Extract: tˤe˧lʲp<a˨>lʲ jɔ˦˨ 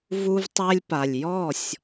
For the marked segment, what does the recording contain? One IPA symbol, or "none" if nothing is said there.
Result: a˨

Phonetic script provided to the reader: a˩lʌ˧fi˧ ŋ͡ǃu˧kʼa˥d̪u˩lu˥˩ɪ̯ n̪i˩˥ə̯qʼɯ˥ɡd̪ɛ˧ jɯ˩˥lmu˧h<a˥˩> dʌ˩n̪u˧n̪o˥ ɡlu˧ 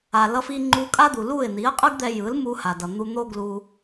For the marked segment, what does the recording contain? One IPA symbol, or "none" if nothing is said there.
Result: a˩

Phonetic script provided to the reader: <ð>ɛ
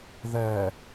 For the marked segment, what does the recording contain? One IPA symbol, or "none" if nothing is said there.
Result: ð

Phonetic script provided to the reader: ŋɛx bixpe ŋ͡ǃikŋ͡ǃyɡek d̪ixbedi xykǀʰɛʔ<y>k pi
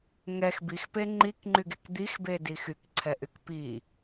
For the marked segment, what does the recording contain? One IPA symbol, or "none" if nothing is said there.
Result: y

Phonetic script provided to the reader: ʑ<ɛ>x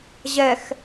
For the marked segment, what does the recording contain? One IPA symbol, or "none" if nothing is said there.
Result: ɛ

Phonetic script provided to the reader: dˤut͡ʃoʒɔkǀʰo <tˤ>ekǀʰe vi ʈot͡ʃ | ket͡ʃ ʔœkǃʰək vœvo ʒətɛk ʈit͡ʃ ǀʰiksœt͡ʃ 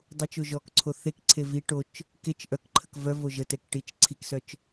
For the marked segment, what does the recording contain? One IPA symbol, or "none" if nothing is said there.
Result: θ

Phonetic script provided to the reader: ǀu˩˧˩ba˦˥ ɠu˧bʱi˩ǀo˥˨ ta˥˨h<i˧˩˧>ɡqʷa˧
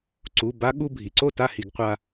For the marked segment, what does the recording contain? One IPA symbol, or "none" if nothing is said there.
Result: i˧˩˧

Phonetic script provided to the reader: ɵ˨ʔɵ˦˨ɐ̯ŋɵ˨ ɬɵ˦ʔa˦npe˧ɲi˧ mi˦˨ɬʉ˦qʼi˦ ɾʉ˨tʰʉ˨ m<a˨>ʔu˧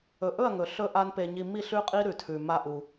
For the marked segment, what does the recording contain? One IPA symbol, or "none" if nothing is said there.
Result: a˦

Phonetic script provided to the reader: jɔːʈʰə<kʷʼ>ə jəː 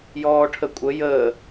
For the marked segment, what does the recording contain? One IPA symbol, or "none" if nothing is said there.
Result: kʷʼ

